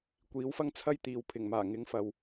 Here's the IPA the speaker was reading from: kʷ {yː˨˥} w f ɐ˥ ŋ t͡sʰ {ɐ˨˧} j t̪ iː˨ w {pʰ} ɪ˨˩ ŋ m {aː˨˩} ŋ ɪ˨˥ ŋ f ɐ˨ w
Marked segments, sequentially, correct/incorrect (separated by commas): incorrect, incorrect, correct, correct